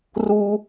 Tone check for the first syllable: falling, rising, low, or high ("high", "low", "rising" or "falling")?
high